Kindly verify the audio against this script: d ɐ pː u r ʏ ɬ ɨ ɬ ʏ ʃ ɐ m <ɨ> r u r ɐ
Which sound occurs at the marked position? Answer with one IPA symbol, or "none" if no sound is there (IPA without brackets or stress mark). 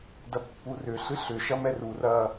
ɛ